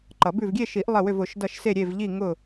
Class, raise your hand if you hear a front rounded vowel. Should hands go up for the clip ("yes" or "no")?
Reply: yes